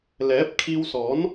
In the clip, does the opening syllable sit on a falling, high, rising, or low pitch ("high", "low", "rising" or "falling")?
rising